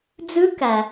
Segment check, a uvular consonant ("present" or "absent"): absent